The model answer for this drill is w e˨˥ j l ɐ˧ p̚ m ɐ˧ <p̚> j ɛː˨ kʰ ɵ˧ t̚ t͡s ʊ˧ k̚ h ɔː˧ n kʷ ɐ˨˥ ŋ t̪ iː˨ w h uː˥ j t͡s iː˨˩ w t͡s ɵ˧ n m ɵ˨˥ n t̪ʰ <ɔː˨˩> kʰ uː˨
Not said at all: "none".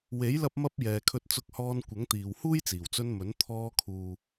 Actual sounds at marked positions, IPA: p̚, ɔː˧

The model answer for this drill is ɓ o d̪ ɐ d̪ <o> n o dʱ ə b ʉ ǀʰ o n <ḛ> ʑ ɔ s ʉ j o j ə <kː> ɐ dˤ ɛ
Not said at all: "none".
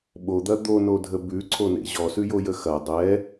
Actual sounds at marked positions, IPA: o, ḛ, x

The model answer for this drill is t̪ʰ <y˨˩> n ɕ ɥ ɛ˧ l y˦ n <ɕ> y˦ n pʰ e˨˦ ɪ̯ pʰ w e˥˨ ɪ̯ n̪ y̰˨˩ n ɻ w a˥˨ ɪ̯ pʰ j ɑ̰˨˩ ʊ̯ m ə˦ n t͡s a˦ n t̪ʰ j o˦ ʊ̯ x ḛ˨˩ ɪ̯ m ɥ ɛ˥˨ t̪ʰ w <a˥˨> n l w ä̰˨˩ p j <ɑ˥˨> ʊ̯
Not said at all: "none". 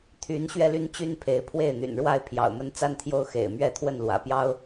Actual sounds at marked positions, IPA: y˨˦, t͡ɕ, ə˥˨, ɑ˦

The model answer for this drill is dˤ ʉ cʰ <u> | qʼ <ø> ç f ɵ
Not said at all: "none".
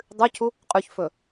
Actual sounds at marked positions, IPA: u, ʉ

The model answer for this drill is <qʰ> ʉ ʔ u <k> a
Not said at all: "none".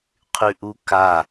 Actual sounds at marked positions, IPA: qʰ, k

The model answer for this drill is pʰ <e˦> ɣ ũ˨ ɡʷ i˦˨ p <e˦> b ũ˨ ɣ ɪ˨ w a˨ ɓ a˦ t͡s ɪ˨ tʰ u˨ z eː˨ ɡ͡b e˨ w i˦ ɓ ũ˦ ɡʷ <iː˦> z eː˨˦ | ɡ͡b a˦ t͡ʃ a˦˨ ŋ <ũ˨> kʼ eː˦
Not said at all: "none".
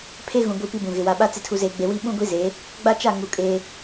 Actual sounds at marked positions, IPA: e˦, i˦, i˦, u˨

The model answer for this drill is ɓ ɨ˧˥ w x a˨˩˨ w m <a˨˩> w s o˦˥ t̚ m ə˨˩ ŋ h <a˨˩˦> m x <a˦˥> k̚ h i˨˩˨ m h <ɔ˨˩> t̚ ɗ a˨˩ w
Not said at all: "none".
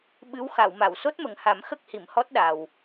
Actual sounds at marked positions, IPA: a˨˩˨, a˨˩˦, ə˦˥, ɔ˦˥

